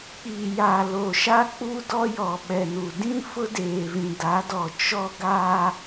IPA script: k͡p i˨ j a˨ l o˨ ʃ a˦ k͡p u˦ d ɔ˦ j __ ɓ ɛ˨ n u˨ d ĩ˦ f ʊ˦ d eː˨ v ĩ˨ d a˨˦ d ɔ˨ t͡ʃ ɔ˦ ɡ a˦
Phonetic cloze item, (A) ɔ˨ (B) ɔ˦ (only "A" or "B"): A